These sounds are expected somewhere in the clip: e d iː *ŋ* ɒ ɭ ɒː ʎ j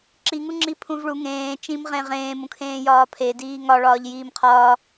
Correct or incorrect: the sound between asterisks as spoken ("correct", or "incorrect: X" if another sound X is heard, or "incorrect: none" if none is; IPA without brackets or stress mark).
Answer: correct